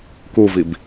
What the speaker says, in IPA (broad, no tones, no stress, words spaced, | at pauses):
kuvib